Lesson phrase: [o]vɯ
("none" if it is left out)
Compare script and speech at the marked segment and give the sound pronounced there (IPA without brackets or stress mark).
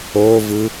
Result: o